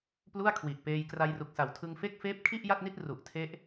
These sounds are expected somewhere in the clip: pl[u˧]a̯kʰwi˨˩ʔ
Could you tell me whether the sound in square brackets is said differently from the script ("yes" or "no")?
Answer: yes